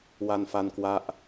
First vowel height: low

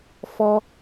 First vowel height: mid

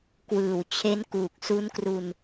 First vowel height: high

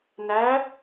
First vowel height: low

